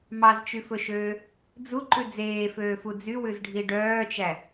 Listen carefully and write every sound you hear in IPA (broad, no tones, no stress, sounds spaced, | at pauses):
m ɑ z t͡ʃ y f ɵ ʃ øː | d͡z u ǃ ʉ d͡z eː f øː f u d͡z y w ʉ z ɖʱ i ɖ œː t͡ʃ æ